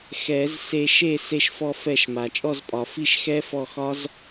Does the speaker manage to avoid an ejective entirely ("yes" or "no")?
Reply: no